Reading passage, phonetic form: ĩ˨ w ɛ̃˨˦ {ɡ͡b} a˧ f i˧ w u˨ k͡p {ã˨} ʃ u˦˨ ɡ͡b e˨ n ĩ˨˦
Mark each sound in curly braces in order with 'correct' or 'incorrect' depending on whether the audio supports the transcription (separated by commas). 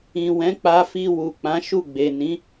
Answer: incorrect, incorrect